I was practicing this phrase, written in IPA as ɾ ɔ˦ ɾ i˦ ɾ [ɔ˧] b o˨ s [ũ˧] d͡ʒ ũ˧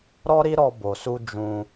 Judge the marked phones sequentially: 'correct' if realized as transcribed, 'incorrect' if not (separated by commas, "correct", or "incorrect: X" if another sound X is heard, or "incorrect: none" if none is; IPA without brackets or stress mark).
correct, incorrect: u˧